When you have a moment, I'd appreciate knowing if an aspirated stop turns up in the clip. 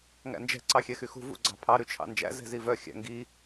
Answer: yes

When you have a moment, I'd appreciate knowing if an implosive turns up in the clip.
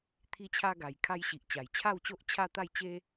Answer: no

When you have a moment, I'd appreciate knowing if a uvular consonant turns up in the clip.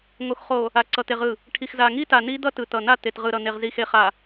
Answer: yes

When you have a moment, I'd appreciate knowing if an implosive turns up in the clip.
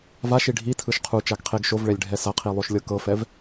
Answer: no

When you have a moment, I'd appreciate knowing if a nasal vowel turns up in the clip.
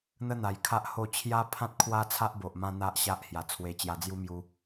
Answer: yes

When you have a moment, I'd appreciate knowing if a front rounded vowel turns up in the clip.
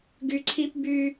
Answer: yes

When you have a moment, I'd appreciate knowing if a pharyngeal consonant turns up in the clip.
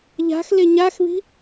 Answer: no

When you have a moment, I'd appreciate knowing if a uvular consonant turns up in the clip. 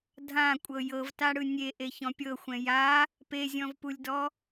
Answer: no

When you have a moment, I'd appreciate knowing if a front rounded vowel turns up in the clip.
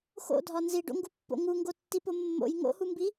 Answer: no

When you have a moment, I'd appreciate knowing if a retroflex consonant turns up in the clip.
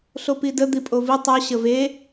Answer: no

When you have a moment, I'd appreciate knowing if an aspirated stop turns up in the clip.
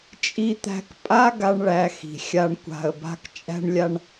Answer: no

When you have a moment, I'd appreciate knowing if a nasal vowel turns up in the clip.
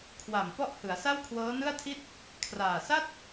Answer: no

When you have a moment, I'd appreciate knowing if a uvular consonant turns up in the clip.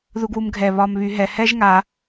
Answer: no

